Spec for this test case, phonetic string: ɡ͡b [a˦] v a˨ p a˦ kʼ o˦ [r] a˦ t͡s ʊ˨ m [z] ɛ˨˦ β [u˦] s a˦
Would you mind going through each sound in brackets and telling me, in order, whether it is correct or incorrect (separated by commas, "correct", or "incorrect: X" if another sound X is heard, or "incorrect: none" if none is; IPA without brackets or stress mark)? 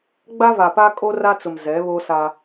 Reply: correct, correct, correct, incorrect: o˦